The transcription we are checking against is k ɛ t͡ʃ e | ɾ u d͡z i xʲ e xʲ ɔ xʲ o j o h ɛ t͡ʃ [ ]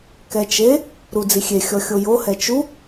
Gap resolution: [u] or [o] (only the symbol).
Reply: u